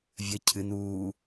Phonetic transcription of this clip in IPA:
vʲ ə cʰ ɨ n uː

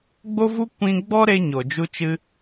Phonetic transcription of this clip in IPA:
ɡ͡b o˦ v u˦ kʷ ĩ˦ ɡ͡b ɔ˦ ɾ e˧ ɲ o˨ d͡ʒ u˧ t͡ʃ ɨ˧

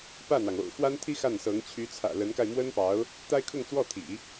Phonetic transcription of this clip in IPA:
p ä˥˩ n̪ ɑ˩ ŋ o̰˨˩ ʊ̯ x w a˥ n t̪ʰ i˥ x a˥˩ n s ɤ˧˥ ŋ t͡ɕʰ y˧˥ t͡sʰ ä̰˨˩ l ə˧˥ n k a˧ ɪ̯ m w ə˥ n p ɑ˧˥ ʊ̯ | t̪ a˥ ɪ̯ kʰ ʊ˥˧ ŋ t͡s w ɔ˥˩ t̪ʰ ḭ˨˩˦

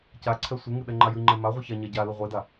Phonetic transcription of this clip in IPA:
c a ǀʰ ɛ sʷ ɨ ŋ ɨ ɗ ɛ ŋ͡ǃ a j ɨ ŋ͡ǃ ɛ m a ʁʷ ɨ ç a ɲ a ɟ a l ɨ ʁʷ e d a

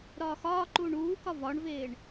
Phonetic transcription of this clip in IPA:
ɾ ɒː x ɒː ǃ uː ɳ uː k ɒ v ɒ ɳ v eː ɳ

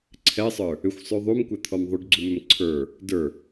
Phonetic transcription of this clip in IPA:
ǀʰ ɛ sˤ ə˞ | ʏ xʷ sˤ ʉ ðˤ u m kʷ ɛ t̪ʰ ɔ m ðˤ ʉ ɖ ɡ͡ǀ u m ʏ m ǀʰ ə˞ | d ə˞

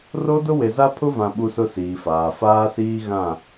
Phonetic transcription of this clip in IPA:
r o˦ d ʊ˦ w e˨ z a˦ pʰ ʊ˦ v ã˨ ɓ u˦ s ʊ˦ s iː˨ f aː˨ f aː˦ s iː˦ ɣ ã˦˨

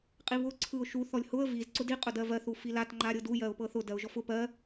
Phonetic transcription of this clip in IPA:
qʼ i β ʊ ǀʰ ɯ ʊ̯ ʃ u θ ɔ lʲ h ʊ ə̯ v i z ǀ ʊ d i qʼ ʊ d ɜ v ɜ θ u f i l a t ŋ͡ǃ a ɾʲ ɤ d u j ɜ ʊ̯ p ɤ θ ʊ d ɜ ʊ̯ ʒ ɔ f ʊ p ɜ

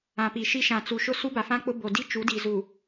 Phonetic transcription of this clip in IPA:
ã˨ p i˨ ʃ i˦ ʃ ã˨ t͡s u˨ ʃ ʊ˦ s u˦ b a˨ f ã˦ k͡p ʊ˦ b o˨ d i˦ t͡ʃ u˨˦ d i˨ z u˨

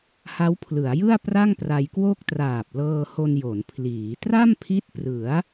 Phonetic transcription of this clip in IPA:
h a˦˥ w pʰ l ɯ˩˦ a̯ j ɯ˥˩ a̯ p r a˥˩ ŋ p r a˧ j k w o˥˩ k̚ t r aː˨˩ p̚ l ɤː˧ h o˧ n j o˩˦ n pʰ l iː˩˦ t r a˥˩ m pʰ i˦˥ t̚ p r ɯ˩˦ a̯

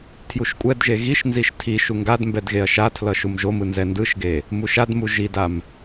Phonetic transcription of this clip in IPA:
tʰ j u ʃ kʷʼ ɛ d ʒ e ɣ i ʃ n z i ʃ tʰ i ʃ u ŋ ɡ a d m b ɛ d ɣ e ɐ̯ ʃ a tʰ l ʌ ʃ u m ʒ o m ɯ n z ɛ n d ɯ ʃ ɡ e | m u ʃ a d m u ʒ i d a m

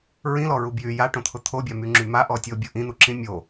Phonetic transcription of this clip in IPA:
ɹ ĩ l ɔ ɹ u b j y j a ʈ õ t̪ʰ ʊ t̪ʰ o bʲ a m y ŋ͡ǁ y m a ʔ ɔ tʲ o bʲ ʊ ʔ ĩ n̪ u ǁ ĩ mʲ o

